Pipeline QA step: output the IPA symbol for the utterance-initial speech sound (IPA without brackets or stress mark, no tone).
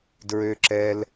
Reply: d